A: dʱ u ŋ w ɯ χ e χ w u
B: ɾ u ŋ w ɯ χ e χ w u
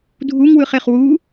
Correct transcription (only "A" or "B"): A